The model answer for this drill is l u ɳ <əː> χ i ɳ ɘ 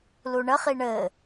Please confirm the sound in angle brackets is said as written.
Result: no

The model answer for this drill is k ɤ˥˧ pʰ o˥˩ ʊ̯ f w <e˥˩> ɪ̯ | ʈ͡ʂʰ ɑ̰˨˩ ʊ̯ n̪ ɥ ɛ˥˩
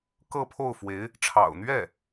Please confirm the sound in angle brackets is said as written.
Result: no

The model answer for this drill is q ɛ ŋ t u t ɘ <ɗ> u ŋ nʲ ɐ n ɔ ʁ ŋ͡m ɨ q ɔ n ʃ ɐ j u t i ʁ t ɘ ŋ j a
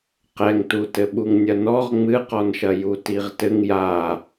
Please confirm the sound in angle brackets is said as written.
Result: no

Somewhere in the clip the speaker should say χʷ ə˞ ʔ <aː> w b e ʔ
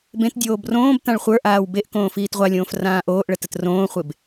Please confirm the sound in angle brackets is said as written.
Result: yes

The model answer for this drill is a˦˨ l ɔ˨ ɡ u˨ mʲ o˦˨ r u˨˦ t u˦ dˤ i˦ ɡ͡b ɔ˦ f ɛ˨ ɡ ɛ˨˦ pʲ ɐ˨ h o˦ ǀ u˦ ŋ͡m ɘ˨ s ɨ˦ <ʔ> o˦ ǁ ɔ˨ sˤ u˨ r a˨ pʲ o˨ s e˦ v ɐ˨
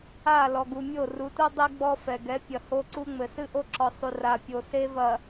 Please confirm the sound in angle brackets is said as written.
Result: yes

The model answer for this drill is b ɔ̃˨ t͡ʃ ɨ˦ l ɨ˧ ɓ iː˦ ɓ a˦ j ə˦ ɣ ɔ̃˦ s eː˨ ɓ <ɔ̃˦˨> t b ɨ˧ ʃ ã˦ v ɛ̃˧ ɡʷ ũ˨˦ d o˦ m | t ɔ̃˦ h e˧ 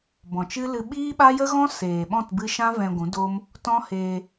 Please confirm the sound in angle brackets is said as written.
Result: yes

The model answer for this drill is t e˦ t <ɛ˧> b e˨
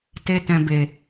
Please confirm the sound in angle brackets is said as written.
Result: no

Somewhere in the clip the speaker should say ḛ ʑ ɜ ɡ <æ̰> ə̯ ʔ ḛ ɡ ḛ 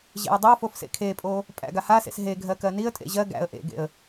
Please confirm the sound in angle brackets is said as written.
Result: yes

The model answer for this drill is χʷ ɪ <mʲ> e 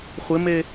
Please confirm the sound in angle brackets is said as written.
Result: no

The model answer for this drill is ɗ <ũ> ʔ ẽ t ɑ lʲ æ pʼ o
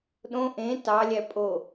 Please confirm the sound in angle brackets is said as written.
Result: no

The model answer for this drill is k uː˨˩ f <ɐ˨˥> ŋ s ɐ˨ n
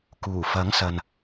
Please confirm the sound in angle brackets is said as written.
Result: yes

